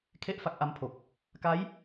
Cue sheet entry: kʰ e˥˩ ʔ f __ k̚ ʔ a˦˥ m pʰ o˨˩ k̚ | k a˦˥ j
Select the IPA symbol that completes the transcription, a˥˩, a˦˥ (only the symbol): a˦˥